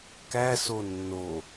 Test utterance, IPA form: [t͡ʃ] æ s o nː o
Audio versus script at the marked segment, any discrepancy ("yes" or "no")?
yes